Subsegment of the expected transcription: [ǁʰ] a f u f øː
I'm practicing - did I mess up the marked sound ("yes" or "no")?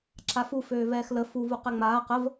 no